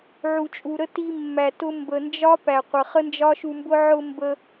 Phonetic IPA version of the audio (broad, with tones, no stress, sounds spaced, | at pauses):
ʕ u˨ t͡ʃʼ u˨ ɾ ə˦ t i˧ mː æ˨ t ʊ˧ m b ə˨ n d͡ʒ ɒ˦ p æ˨ qʷ ə˨ χ ə˦ n d͡ʒ ɒ˦ ʃ u˧ m b ʊ˦ ʕ ʊ˧ m b ə˧